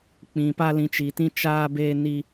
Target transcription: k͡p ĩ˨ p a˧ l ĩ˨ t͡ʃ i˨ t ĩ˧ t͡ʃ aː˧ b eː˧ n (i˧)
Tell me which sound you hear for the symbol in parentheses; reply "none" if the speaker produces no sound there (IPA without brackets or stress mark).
i˧